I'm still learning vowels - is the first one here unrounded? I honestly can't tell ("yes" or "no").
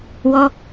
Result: no